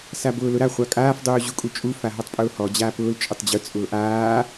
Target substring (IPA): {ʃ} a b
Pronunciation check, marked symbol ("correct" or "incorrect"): incorrect